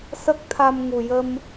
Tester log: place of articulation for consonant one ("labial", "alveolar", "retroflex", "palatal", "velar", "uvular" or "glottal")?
alveolar